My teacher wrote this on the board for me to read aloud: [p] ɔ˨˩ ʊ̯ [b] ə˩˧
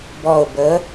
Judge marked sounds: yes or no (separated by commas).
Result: no, yes